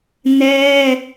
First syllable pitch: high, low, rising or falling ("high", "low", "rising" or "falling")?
high